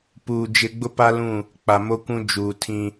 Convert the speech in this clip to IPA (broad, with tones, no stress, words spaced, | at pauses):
puː˨ d͡ʒɪ˦ ɡ͡bʊ˦pa˦lũ˦˨ | k͡pa˨mo˦kʷũ˦ d͡ʒuː˨tʰĩ˦